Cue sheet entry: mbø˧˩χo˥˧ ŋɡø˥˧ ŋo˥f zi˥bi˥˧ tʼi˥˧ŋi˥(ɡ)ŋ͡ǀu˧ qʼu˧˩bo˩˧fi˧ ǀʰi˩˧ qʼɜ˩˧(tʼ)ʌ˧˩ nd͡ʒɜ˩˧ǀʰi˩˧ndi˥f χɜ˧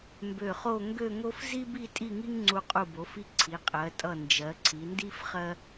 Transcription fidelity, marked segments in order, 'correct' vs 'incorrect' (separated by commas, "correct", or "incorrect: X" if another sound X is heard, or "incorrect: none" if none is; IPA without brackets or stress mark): incorrect: ŋ, correct